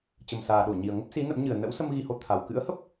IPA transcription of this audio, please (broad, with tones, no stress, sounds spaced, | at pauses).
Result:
t͡ɕ ə˨˩ m s aː˨˩ ɗ o˧˩ ɲ i˨˩ ə̯ ŋ ə˦˥ p̚ s i˨˦ n ə̰˧˥ m ɲ ɨ˨˩ ə̯ n ə̰˧˥ w s ə˧ m ɣ i˧ h o˨˦ t̪ʰ a˨˩ w k ɨ̰˧˥ ə̯ h ə˦˥ p̚